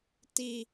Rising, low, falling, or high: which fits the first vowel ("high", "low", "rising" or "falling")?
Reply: low